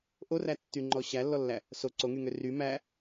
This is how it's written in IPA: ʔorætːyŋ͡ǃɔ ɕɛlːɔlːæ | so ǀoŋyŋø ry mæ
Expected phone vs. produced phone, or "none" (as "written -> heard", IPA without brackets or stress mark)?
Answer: ɛ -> æ